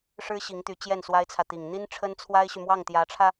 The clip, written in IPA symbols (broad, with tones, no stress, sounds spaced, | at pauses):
ʂ ɻ̩˥ ɕ i˧˥ ŋ t̪ y˧˥ t͡ɕ j ɛ˥˩ n s w a˥ ɪ̯ t͡sʰ ä˨ t̪ i˨˩ ŋ n̪ i˥ n ʈ͡ʂʰ ə˥ n t͡sʰ w a˥ ɪ̯ ɕ y˨ m w ɑ˥˩ ŋ t̪ j ä˧˥ ʈ͡ʂʰ ä˧